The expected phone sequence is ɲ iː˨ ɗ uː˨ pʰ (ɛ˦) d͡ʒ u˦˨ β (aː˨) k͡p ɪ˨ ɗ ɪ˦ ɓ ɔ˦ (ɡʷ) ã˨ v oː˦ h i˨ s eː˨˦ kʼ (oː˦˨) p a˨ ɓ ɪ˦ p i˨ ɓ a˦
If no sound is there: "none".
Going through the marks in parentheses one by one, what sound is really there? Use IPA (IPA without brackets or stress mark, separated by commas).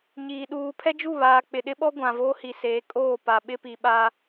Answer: ɛ˦, aː˨, ɡʷ, oː˦˨